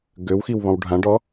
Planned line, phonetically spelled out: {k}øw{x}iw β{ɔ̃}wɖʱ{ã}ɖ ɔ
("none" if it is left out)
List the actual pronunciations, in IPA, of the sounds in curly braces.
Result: ɡ, x, ɔ̃, ã

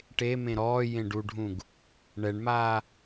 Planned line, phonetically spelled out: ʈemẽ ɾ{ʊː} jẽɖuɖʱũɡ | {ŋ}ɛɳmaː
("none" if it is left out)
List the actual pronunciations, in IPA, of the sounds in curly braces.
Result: ɔː, ɳ

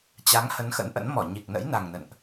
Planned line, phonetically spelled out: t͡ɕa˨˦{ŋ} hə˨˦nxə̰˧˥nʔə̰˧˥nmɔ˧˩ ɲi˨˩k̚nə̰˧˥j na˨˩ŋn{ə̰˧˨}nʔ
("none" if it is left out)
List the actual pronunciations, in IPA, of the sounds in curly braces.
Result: ŋ, ə̰˧˨

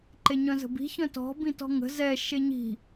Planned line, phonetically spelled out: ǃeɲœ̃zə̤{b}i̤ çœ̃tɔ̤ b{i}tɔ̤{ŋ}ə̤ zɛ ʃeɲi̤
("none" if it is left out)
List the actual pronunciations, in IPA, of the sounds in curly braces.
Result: b, ĩ, ŋ

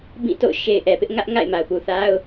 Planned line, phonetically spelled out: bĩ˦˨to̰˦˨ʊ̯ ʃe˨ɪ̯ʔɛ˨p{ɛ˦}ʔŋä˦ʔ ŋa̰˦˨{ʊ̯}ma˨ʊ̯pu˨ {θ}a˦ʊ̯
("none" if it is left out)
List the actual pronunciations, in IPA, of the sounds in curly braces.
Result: ɪ˦, ɪ̯, θ

